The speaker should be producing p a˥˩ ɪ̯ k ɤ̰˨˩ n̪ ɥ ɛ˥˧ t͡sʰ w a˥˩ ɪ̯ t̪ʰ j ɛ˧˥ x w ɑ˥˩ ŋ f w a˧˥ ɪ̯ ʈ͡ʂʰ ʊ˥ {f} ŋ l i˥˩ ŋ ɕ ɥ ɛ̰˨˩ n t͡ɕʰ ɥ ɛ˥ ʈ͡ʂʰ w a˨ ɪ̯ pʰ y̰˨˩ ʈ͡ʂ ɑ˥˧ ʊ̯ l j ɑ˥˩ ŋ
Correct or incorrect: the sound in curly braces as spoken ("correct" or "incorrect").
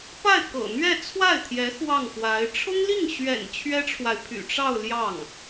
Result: incorrect